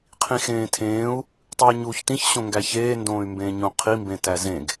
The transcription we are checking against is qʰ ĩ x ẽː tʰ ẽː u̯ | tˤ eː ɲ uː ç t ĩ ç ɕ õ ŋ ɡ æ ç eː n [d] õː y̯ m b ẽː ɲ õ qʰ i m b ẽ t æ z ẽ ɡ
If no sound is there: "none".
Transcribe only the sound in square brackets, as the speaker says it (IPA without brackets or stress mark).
d